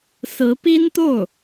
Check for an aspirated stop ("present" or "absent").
absent